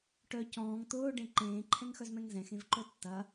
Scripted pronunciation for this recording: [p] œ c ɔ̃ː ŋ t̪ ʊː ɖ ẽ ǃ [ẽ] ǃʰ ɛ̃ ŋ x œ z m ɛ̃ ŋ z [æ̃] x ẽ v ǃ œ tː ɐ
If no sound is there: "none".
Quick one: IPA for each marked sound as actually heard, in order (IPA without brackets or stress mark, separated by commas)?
ʈ, ẽː, ɛ̃